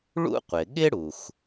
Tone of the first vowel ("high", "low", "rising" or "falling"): high